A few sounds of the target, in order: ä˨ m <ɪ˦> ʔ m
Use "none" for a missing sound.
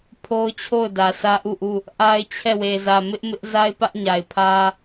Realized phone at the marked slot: ɪ˦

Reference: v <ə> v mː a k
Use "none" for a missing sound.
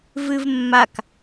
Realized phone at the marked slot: ɨ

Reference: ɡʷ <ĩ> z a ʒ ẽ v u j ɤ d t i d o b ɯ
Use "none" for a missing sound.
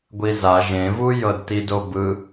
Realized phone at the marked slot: i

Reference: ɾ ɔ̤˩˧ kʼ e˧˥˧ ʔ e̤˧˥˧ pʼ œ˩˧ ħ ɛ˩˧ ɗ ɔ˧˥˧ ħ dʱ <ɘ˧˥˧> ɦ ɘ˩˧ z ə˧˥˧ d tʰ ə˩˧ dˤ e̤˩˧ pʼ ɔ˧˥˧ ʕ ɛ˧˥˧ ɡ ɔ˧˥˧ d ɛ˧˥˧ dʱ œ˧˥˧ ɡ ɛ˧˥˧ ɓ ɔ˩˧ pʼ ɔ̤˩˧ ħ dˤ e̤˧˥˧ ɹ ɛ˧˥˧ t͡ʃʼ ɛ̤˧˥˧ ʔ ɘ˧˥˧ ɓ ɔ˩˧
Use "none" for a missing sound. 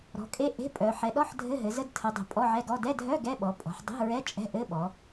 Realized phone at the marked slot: ɘ˧˥˧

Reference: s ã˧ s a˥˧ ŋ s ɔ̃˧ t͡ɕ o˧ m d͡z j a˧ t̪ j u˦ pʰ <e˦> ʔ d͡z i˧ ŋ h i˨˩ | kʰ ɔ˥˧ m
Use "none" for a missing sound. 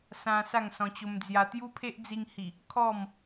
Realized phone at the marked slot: e˦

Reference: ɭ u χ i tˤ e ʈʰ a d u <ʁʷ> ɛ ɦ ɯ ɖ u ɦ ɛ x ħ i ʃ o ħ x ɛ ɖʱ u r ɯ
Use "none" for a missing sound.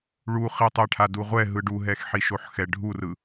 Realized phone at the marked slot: ʁʷ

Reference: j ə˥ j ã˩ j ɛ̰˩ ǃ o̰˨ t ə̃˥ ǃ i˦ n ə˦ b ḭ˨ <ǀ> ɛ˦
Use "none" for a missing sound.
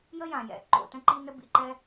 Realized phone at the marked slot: ǃ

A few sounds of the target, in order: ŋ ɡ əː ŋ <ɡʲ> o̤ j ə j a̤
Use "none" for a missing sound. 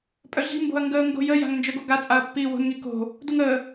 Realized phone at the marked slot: ɡ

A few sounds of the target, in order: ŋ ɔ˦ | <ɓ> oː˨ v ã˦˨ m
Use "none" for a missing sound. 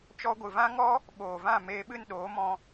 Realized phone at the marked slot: ɓ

